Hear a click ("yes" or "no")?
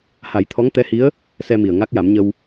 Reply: no